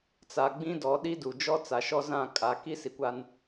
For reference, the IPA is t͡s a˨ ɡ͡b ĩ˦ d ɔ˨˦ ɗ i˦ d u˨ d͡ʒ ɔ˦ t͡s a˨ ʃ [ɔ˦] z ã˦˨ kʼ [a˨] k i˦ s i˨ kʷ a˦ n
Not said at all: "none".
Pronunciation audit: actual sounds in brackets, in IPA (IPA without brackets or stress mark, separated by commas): ɔ˦, a˨